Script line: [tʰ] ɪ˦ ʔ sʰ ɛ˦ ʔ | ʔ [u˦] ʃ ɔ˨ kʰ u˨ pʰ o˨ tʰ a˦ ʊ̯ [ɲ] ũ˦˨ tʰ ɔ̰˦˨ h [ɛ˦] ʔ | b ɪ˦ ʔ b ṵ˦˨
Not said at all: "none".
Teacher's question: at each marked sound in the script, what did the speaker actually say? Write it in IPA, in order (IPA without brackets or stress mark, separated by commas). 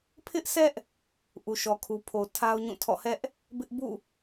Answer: pʰ, u˨, ɲ, ɛ˦